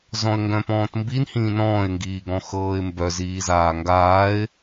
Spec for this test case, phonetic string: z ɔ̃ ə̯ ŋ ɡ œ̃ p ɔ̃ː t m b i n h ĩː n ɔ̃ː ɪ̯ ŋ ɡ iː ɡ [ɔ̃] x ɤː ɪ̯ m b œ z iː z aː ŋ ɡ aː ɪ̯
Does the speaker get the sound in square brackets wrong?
no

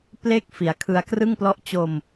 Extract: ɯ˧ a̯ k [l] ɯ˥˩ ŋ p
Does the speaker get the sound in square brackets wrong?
yes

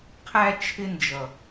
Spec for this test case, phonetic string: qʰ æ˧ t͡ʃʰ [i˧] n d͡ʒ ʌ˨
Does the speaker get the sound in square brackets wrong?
yes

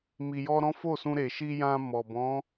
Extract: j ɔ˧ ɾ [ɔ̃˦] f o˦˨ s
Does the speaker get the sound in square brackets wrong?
no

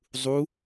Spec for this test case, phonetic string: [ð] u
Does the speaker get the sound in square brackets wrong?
yes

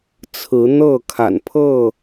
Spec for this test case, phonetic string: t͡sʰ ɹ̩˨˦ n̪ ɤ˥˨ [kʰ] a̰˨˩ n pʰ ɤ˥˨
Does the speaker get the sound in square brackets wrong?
no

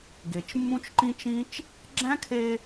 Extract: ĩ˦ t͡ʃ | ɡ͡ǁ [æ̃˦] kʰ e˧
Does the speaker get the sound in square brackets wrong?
no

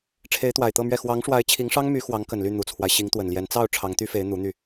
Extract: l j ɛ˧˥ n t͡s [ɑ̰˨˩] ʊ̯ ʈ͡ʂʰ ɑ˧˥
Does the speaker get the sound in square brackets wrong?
yes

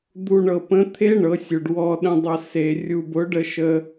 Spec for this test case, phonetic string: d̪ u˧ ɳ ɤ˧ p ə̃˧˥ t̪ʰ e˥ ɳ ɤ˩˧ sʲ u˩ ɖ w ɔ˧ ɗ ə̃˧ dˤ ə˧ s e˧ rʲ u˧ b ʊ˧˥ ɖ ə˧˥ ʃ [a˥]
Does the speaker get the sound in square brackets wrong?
yes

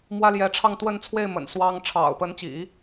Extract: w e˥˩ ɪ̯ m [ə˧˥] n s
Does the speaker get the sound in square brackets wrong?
yes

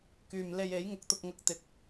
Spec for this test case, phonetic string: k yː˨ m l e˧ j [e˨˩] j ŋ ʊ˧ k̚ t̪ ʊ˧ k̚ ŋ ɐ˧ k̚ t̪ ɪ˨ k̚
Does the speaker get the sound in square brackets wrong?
yes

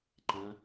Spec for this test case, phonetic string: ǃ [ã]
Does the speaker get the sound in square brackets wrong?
no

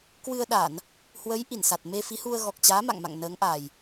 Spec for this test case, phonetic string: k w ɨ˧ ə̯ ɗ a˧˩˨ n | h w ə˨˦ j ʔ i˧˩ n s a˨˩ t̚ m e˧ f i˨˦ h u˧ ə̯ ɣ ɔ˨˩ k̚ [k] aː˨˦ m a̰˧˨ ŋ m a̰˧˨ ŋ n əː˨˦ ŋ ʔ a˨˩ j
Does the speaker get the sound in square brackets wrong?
yes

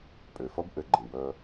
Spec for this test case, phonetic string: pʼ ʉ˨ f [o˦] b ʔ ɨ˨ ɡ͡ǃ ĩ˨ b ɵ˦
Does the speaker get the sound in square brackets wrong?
no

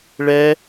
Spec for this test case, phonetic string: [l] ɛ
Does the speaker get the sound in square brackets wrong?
yes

